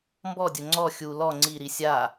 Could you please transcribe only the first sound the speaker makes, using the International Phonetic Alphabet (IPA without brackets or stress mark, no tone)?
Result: m